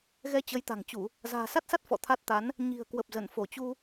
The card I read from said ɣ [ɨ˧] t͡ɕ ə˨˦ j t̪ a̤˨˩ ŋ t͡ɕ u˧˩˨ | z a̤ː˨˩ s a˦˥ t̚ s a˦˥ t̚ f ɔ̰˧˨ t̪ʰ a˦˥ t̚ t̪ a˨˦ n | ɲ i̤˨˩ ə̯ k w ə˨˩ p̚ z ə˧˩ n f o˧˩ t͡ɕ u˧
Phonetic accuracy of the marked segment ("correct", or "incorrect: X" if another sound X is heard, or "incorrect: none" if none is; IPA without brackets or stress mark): incorrect: ɛ˧